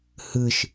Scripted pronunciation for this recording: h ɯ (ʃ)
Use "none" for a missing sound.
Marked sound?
ʃ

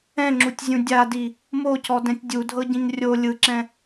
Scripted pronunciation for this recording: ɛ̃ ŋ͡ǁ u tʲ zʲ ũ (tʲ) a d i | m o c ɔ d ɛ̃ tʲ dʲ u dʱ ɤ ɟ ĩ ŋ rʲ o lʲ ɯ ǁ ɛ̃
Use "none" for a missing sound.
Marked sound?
dʲ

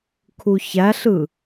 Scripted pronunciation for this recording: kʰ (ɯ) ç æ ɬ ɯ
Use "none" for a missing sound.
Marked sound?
u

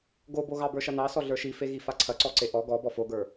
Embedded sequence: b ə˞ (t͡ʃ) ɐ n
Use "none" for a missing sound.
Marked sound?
ʃ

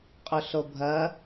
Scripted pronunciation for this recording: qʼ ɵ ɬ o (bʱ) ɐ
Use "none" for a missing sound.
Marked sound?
bʱ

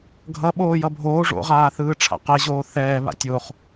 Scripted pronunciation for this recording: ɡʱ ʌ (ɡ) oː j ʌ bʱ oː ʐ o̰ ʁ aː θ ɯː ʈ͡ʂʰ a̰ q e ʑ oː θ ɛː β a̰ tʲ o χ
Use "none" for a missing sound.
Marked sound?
ɓ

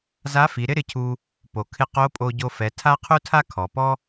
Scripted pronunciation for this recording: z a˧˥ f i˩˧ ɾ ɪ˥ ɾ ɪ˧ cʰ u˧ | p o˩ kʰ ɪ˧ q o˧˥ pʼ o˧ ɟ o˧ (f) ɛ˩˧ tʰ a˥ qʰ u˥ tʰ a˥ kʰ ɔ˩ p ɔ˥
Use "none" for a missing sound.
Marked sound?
f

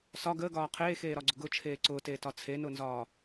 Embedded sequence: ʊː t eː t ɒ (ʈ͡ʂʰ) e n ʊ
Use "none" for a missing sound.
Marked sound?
t͡sʰ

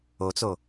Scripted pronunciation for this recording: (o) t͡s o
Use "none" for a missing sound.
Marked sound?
o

